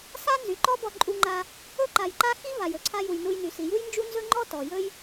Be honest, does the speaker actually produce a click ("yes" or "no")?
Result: yes